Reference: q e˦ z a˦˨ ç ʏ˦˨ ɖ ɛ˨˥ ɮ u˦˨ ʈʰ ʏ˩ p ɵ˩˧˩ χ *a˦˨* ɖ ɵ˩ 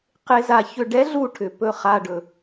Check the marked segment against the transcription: incorrect: a˩˧˩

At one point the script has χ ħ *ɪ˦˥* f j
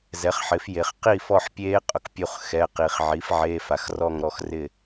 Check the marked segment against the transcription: incorrect: ɪ˩˥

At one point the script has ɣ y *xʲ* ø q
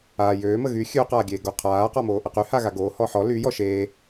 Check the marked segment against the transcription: correct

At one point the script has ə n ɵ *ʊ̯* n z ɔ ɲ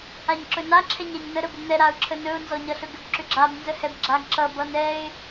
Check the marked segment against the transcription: correct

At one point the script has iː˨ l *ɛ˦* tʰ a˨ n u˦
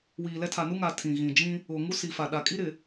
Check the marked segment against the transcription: correct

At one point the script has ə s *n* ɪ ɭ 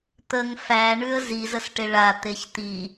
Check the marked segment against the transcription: incorrect: ʈ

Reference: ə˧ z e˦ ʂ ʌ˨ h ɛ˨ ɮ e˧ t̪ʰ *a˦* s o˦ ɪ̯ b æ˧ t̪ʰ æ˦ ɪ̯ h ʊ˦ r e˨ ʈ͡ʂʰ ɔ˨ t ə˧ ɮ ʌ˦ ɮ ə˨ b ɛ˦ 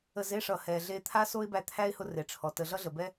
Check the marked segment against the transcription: correct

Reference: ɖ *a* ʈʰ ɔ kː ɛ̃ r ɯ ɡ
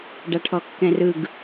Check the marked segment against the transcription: correct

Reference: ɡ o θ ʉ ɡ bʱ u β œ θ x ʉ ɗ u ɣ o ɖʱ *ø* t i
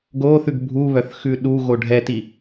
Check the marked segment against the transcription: incorrect: ɛ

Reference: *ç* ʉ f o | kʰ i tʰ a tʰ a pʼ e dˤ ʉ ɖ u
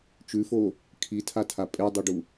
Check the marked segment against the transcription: incorrect: t͡ʃ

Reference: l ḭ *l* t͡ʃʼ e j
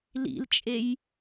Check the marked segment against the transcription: correct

